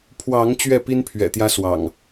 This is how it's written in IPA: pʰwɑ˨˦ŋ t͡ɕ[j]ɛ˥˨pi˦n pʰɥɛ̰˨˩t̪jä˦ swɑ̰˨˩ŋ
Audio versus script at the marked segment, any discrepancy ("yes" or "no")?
yes